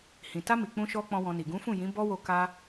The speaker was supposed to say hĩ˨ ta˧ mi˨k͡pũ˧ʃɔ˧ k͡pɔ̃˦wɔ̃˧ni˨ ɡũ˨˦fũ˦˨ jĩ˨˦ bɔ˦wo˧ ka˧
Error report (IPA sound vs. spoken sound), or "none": none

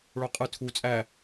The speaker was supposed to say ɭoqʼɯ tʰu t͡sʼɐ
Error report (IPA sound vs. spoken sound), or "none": ɐ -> æ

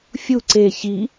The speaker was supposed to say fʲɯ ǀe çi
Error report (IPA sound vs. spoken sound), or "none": ɯ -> u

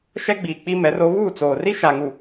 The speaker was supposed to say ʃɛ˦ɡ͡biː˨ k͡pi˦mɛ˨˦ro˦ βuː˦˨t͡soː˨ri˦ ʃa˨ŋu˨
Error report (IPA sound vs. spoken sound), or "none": none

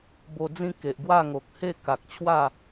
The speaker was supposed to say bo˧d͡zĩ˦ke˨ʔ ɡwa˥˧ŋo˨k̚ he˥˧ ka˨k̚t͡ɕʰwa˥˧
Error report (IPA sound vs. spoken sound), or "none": none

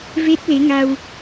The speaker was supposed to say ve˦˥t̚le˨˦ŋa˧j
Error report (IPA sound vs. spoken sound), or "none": j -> w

